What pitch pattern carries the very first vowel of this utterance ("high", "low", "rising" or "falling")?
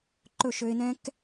falling